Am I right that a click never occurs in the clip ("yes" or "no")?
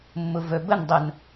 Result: yes